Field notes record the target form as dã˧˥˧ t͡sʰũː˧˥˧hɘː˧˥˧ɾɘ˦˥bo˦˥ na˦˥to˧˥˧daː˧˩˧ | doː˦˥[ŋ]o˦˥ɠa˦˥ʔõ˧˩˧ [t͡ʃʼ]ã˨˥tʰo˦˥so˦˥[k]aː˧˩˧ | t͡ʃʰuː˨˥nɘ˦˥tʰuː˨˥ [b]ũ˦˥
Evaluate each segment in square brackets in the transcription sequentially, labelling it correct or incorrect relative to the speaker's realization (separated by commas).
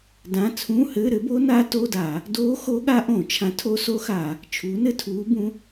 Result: incorrect, incorrect, incorrect, correct